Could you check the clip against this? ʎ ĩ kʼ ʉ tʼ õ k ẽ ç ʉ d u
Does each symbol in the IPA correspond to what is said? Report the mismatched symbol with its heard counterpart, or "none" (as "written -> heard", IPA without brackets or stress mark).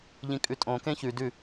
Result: u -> ʉ